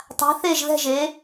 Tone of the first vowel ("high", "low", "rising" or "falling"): rising